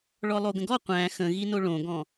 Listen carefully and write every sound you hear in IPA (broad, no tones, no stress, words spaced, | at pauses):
ɭɔlˠoɡə̃ɡɔ qʷæ̃ xə̃ɣino ɭõɡɔ̃